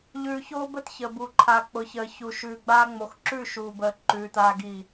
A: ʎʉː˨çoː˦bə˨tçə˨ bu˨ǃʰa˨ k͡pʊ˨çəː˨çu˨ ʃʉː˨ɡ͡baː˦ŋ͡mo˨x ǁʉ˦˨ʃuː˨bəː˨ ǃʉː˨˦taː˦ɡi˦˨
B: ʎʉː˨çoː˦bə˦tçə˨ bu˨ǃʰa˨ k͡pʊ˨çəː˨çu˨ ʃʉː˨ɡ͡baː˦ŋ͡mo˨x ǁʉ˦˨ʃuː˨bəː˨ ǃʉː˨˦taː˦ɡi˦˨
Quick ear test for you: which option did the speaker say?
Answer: B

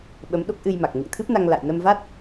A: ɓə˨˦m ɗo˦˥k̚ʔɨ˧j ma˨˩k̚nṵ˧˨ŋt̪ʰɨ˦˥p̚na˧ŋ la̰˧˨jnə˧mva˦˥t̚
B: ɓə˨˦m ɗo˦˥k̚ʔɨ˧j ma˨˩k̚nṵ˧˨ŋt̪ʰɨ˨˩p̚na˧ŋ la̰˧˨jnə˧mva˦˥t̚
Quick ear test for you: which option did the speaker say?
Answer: A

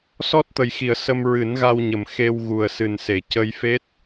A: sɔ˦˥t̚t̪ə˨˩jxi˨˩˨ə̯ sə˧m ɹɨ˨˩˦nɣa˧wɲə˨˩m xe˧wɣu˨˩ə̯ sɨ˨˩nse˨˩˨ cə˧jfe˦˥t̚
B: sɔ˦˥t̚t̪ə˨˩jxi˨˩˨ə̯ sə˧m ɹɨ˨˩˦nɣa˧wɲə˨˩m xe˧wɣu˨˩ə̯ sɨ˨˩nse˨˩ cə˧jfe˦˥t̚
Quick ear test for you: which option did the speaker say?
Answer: A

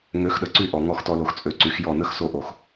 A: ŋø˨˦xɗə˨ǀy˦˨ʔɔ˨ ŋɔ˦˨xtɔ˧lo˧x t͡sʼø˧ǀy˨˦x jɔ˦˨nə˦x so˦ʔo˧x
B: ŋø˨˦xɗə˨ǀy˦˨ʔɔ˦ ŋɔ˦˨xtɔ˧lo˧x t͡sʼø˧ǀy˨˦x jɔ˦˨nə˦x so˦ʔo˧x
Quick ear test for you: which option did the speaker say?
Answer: A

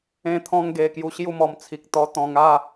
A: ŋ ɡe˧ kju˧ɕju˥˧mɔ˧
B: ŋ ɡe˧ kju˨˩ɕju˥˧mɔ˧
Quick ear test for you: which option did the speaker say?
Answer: A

